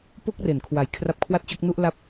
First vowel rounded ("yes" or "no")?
yes